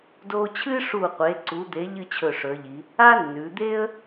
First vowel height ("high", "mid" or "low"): mid